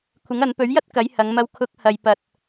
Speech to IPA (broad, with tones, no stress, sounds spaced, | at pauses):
kʷʰ ɪ˨˥ ŋ ɐ˨˧ n p ɵ˨˥ ɥ j ɐ˥ t̚ k ɐ˨˥ j h ɐ˨˧ ŋ m ɐ˧ w kʰ ʊ˨˥ k̚ h ɐ˨ j p ɐ˧ t̚